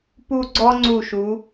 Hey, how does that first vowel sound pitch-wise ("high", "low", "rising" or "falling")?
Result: falling